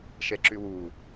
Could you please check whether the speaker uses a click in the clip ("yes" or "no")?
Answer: yes